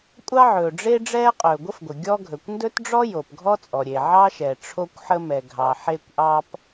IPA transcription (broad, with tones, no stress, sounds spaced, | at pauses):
kʷʼ ɑ˥ ʕ ɵː˩ ɖ͡ʐ e˥ ɖ͡ʐ ɛː˥ qʼ ɵː˩ ɡʷ ə˥ f ɡʷ ə˩ ɡʲ ɔ˥ ɡʱ ɵ˩ kʷ n d ɵ˥ t ɖ͡ʐ ɔ˥ j o˩ p ɡʱ ɔ˥ t͡sʼ ɔ˩ ɾʲ e˩ ʕ ɑ˥ ʃ ɛ˩ ʈ͡ʂʰ o˥ kʷ ħ ə˥ m ɛ˩ ɡʱ ɑ˩ ħ e˥ kʷ ʔ ɑ˥ p